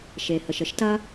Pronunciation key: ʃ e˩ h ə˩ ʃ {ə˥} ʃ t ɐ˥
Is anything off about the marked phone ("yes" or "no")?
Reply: no